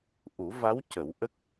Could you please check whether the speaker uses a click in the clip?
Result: no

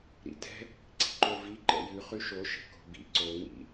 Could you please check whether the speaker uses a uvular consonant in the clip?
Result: yes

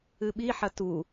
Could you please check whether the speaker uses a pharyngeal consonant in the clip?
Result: yes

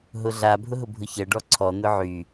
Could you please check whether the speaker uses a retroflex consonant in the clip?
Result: yes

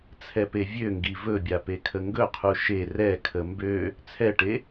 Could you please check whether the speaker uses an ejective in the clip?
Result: no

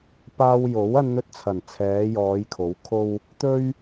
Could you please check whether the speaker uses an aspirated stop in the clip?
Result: yes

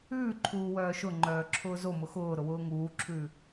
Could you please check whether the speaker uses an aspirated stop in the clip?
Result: yes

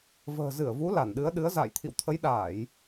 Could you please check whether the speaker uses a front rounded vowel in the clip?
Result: no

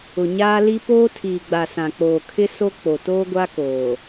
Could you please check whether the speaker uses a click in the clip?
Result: no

